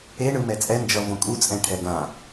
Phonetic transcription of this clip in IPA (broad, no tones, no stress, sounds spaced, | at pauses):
e ɳ ɯ m ɛ t͡sʼ ɛ n d͡ʒ ʌ v õ kʼ u t͡sʼ ɛ̃ ʈʰ ɛ ɡ ã